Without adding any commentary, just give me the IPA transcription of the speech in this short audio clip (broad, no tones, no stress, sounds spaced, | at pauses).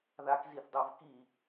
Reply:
ð a k z i θ dˤ o v k i